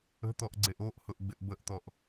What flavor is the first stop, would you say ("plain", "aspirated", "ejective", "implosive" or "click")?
plain